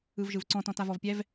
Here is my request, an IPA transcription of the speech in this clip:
ɯ v ʒ ɯ v ǀ ɔ̃ t ɔ̃ t a v ɔ v pʲ ɛ v

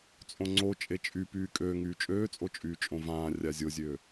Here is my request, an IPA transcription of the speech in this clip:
t͡sʼ õ ŋ͡ǀ o t͡ʃʼ e t͡ʃʼ y p yː kʼ øː ŋ yː t͡ʃʼ øː t͡sʼ o t͡ʃʼ yː t͡ʃʼ õ v ãː rʲ a zʲ o zʲ ø

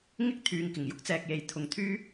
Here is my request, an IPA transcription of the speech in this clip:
ŋ ɪ˥ k̚ t̪ʰ yː˨ ŋ k ɪ˨˩ ŋ j ʊ˥ k̚ t͡s ɛː˨ k̚ j e˨ j t̪ʰ ʊ˨ ŋ t̪ʰ yː˥

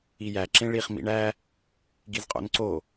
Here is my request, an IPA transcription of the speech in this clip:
i j æ ǁ ẽ ɭ i χ m ḭ ɳ æ | ɡ i z qʼ o̰ n ǀ o

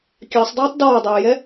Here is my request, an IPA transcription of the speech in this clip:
kʲ ɑ sˤ dˤ ɛː tˤ d ɔː dˤ eː j ɛ

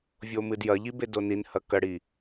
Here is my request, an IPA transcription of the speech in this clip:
vʲ o m ɨ d j ɐ ʎ i b e d o n i n h ɐ k ɐ ɽ i

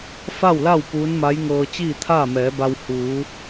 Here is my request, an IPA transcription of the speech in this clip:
f a˥˨ w l a˥˨ w p uː˧˥ n m a˧˥ j ŋ ɤː˧ t͡ɕ iː˥˨ t̪ʰ aː˥˨ m ɛː˩˧ b a˧ w h uː˩˧

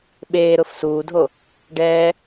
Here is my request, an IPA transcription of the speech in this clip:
ɓ eː ɾ ʊ f s uː dʱ o | ɖ ɛː

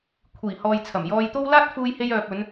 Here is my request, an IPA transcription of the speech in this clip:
kʷʰ iː˨˩ h ɔː˨ j t͡sʰ ɐ˨˩ m j ɔː˧ j t̪ o˥ w l aː˥ t̚ f uː˧ j h e˧ j œː˨ p̚ ɵ˨˧ n

